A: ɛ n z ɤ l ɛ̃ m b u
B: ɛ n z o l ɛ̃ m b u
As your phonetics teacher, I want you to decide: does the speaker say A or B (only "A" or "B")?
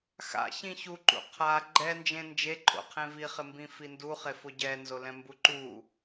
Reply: B